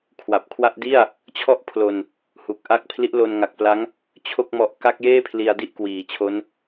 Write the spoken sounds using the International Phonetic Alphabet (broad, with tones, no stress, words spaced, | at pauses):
kʰwa˨˩p̚kʰwa˥˩ʔ di˥˩a̯ | t͡ɕʰɔ˥˩ʔpʰlo˧n | hu˨˩k̚ʔa˥˩k̚ pʰli˦˥ʔlo˧nŋa˨˩k̚pla˦˥ŋ | t͡ɕʰo˥˩k̚mɔ˦˥ʔ ka˦˥k̚jeː˥˩pʰli˧a̯ di˥˩ʔkwiː˩˦t͡ɕʰo˦˥n